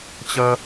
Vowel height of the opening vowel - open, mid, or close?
mid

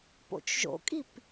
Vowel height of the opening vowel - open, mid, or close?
mid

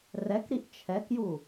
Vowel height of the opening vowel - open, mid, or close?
mid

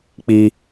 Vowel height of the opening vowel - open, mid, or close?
close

